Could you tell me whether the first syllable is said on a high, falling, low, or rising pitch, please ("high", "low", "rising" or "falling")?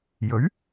rising